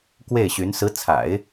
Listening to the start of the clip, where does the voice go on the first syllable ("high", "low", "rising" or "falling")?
falling